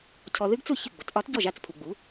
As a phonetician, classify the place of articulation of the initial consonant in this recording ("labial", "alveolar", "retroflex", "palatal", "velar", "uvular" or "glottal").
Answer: palatal